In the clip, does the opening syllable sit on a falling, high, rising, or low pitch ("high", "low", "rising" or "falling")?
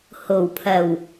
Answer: low